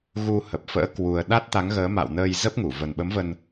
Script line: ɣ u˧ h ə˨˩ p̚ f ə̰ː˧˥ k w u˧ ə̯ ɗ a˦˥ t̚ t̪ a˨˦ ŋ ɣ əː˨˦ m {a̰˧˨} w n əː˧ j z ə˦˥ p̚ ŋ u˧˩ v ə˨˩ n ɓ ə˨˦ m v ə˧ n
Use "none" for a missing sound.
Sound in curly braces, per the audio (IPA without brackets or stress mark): a̰˧˨